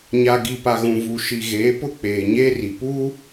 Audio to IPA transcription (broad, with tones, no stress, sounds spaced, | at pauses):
ɲ a˨ ɡ i˨ p a˨ ɣ ũ˨ v u˨ ʃ i˨ ɣ eː˨˦ p ʊ˦ k͡p eː˨ ɲ eː˦ r i˨ p u˦